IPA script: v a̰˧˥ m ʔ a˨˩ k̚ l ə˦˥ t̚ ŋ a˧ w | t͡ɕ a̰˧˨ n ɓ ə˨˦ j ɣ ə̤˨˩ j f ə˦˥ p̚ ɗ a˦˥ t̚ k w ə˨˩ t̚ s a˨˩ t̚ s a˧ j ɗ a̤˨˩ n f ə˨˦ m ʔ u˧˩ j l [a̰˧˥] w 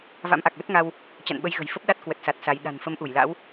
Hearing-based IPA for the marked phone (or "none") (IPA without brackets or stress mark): a̰˧˥